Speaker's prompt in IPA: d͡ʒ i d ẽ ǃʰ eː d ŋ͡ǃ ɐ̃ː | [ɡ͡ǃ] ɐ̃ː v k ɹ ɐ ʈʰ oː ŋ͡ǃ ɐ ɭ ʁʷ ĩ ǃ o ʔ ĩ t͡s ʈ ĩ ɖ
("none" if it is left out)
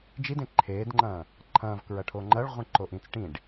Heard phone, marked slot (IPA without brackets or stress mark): ǃʰ